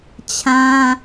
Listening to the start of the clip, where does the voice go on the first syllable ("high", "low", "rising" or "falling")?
high